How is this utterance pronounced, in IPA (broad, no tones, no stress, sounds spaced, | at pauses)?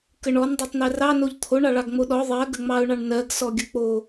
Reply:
k ə ɳ ɔ n dˤ ɑ tˤ n ɜ r ɑ n o ʎ t̪ʰ o ɳ ɑ ɭ ɑ ɡ ŋ͡m o ɗ ɔ ðˤ ɜ ɡ ə ŋ͡m ɑ ʊ̯ ɳ ɑ ɳ n ɜ ɡ s ɔ ɡʲ ə k͡p o